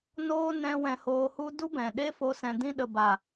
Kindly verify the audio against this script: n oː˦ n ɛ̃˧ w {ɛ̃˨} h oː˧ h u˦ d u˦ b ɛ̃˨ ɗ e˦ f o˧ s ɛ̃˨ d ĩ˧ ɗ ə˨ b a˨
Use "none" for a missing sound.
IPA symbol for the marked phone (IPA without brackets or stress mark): ɛ̃˧